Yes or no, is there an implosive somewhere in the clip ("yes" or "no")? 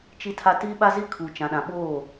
yes